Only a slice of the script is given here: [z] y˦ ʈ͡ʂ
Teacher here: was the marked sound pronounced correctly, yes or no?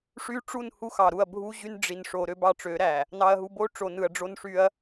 no